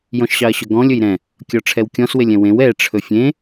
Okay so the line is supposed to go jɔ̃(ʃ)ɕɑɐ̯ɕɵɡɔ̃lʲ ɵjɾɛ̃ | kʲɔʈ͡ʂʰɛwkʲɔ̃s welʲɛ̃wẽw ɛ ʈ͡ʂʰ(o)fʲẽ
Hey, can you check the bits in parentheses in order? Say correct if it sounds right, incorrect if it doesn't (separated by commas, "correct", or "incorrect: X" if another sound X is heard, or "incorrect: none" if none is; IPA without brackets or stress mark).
correct, incorrect: ɵ